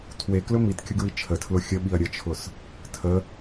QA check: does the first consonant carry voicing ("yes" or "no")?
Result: no